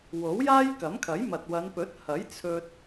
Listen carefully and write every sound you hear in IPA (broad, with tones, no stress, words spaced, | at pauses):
wo˨˥wjaː˥jkɐ˨˥mkʰɐ˨˥j mɐ˨t̚wɐ˨˧npɵ˨˥t̚ hɐ˨˥jt͡sʰɵ˧t̚